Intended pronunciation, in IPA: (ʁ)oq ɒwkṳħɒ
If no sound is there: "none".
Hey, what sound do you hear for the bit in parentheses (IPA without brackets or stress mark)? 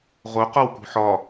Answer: ʁ